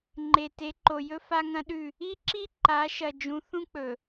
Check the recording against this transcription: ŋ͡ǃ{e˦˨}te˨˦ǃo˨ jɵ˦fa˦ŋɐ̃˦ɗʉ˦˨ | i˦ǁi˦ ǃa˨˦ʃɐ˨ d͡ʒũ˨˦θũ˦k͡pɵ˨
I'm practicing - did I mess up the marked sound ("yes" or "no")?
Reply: yes